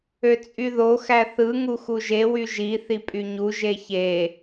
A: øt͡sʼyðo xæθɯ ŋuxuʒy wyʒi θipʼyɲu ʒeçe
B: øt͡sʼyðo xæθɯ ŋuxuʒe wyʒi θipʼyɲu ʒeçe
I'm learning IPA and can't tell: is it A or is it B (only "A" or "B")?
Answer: B